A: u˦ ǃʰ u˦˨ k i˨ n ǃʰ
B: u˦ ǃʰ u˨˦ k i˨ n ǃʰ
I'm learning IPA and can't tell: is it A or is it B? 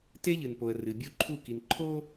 A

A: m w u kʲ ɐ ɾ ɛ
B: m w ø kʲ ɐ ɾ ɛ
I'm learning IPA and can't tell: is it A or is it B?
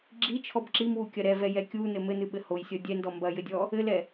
A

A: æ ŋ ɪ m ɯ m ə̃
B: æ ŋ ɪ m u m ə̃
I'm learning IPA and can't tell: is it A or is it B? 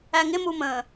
B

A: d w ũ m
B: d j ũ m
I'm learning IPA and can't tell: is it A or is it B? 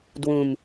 A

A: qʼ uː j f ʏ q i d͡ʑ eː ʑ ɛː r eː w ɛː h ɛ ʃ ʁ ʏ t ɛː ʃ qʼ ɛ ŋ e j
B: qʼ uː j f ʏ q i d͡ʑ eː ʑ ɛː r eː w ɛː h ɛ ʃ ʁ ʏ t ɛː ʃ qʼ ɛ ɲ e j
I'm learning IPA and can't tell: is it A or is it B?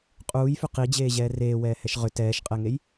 A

